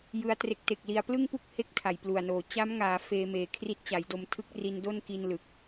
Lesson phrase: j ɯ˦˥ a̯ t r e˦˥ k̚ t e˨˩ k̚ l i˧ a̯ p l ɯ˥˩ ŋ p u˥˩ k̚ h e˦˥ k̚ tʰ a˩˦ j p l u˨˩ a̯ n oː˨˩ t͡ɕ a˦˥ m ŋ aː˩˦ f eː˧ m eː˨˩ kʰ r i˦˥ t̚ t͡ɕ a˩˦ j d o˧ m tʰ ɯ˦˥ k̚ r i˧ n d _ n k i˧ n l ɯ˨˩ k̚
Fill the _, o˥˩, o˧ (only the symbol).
o˥˩